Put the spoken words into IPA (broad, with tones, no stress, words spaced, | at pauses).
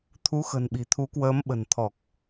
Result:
t̪ʰu˨˦xə̤˨˩nɓi̤˨˩ t̪ʰu˨˦kwəː˨˦m ɓə̤˨˩nt̪ʰɔ˨˩k̚